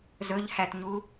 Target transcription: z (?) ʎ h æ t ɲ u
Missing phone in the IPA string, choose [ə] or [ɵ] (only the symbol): ɵ